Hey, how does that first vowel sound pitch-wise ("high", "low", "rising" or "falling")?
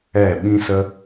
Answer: falling